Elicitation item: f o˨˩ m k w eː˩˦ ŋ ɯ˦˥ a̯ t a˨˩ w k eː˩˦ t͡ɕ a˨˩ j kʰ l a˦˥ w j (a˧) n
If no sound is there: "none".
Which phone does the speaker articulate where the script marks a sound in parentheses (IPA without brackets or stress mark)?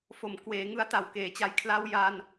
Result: a˧